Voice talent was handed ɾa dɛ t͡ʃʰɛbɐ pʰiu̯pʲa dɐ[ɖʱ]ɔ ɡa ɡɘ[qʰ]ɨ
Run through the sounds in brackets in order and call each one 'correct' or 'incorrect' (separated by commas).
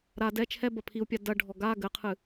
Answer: correct, correct